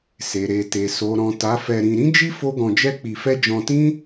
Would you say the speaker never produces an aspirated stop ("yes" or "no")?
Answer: yes